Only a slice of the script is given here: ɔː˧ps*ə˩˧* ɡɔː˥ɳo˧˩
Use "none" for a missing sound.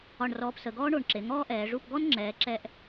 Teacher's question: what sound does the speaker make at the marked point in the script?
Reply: ə˩˧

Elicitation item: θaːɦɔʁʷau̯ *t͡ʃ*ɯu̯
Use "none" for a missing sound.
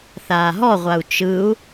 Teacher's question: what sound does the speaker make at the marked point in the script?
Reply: t͡ʃ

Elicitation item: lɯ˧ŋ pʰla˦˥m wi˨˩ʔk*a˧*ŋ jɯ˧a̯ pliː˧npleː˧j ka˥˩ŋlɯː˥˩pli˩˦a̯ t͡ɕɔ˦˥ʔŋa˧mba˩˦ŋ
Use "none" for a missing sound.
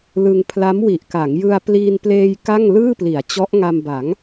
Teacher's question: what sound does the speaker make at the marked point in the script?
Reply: a˩˦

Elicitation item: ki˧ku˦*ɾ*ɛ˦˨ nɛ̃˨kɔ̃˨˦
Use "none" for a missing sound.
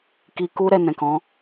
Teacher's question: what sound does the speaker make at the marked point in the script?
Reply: ɾ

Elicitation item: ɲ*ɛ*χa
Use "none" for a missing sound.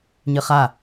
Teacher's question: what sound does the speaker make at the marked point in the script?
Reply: ɨ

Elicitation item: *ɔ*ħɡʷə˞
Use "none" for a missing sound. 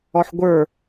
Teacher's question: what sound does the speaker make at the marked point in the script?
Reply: ɔ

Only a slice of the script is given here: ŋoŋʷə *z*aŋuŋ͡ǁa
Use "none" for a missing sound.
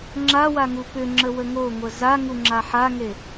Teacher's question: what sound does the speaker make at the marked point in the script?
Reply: z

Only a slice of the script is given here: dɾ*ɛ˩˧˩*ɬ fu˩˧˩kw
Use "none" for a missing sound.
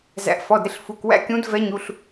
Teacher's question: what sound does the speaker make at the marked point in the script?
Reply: ɪ˩˧˩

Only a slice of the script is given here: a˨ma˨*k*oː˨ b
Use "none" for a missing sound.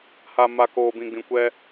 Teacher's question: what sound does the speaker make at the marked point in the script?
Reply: k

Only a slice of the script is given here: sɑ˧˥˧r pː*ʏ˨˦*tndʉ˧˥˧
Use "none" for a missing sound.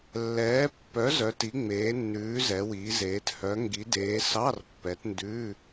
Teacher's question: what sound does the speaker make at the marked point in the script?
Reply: ɛ˨˦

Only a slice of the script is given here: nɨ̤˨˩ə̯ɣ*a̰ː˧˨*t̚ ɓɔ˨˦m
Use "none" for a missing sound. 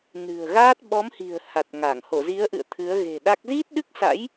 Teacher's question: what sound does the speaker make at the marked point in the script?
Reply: aː˦˥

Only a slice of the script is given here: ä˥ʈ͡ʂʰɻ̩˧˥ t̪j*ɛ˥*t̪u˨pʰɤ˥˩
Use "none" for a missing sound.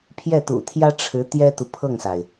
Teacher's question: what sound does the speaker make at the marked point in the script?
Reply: ɛ˥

